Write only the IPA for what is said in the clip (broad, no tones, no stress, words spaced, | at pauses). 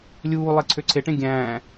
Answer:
lʲuːlˠe ǀʰøǀʰeʈẽ ɡʲæ̃ː